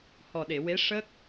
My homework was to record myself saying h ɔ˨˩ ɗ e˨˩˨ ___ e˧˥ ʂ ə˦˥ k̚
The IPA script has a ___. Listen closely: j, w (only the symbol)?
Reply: w